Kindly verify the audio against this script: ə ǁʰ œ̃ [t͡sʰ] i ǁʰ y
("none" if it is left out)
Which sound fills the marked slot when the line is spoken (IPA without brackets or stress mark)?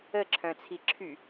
t͡sʰ